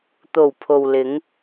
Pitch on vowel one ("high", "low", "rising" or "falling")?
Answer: low